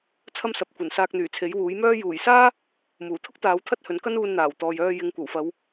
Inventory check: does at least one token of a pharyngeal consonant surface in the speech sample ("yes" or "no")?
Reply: no